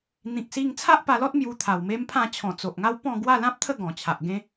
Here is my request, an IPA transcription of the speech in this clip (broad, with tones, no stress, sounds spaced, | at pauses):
n̪ ĩ˨ k̚ s i˧ ŋ t͡sʰ a˦ ʔ p a˧ l ɔ˦ t̚ m j u˧ t̪ʰ a˨˩ w m e˦ m pʰ ã˥˧ t͡ɕʰ ɔ̃˨˩ t͡s o˨ ʔ ŋ a˦ w p ɔ̃˥˧ ɡ w a˥˧ l ã˦ p̚ t̪ʰ ə˥˧ ɡ ɔ̃˨˩ t͡ɕʰ a˨ ʔ ɡ ẽ˦